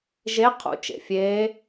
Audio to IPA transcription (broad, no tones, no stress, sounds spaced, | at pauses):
ʒ e qʰ ṵ t͡ʃ ḛ fʲ eː